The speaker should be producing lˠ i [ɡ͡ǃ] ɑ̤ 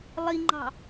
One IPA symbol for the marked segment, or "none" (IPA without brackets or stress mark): ŋ͡ǃ